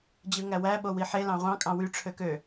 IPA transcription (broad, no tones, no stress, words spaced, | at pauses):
d͡ʑɯŋæwæ ɓowiħe lɑ̃ʁʷɑ̃ kʼɑ̃wy ʈ͡ʂʰøkø